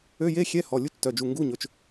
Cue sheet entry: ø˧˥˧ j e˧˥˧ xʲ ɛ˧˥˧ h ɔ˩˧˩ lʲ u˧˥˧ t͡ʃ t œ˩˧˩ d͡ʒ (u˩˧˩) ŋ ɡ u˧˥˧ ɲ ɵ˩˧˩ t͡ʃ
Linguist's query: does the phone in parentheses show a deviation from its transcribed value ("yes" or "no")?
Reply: no